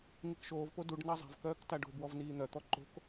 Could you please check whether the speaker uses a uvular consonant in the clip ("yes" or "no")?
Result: no